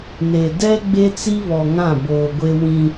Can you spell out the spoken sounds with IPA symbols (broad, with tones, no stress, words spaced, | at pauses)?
ne˨ dɛ˦ ɡ͡be˦t͡si˦ βɔ˨ŋã˦˨boː˨ɡʷe˦ wĩ˦